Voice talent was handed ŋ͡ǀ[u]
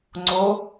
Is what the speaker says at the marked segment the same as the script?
no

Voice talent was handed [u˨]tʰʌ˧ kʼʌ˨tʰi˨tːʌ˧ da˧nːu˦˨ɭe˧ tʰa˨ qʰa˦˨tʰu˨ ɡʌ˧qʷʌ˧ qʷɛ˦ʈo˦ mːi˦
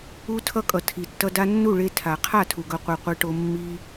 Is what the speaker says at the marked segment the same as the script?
no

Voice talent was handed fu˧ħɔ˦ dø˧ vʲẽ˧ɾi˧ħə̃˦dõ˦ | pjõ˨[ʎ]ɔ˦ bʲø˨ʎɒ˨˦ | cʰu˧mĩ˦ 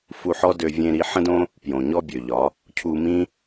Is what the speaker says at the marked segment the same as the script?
no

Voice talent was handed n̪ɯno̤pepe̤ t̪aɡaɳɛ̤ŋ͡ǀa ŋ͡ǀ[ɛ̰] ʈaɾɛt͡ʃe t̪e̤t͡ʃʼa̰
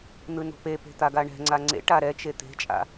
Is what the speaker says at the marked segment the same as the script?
no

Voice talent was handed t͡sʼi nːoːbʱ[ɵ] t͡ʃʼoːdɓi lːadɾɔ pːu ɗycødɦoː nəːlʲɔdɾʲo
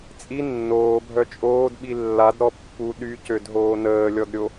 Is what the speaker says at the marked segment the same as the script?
no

